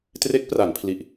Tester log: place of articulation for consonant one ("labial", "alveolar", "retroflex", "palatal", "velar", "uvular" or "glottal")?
alveolar